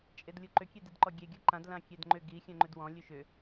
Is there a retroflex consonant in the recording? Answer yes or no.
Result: no